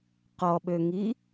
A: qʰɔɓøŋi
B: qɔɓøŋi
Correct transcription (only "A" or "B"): B